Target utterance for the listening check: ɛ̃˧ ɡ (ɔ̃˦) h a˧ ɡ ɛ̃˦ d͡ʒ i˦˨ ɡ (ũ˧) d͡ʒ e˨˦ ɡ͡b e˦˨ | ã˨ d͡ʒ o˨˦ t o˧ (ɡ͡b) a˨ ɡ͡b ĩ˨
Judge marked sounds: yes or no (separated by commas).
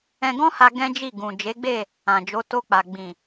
yes, no, no